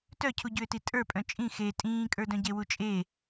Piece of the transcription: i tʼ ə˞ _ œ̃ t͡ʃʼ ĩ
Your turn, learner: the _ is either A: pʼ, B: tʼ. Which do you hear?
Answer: A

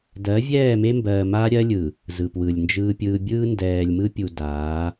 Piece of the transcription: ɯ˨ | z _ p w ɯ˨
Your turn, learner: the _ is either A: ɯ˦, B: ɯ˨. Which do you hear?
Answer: B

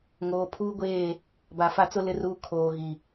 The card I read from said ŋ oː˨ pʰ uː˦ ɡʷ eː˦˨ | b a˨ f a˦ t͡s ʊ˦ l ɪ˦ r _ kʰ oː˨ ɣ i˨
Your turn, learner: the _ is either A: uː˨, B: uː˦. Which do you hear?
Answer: B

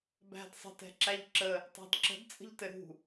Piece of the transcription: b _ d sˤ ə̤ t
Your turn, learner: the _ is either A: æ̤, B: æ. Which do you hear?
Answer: A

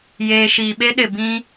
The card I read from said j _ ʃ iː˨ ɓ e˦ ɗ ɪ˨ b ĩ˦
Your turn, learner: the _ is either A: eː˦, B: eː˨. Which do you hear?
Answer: B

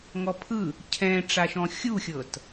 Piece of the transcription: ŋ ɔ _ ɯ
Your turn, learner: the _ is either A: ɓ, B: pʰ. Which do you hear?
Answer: B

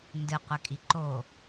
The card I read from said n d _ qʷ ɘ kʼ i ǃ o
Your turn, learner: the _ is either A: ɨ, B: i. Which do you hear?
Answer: A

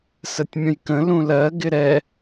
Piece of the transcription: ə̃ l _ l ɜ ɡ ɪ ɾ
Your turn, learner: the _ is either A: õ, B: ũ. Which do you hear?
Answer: B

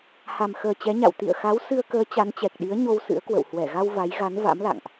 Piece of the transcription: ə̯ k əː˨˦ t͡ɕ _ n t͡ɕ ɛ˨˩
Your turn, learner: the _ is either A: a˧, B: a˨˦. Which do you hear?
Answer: B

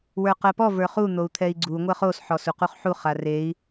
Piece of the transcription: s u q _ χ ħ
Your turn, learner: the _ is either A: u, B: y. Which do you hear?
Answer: A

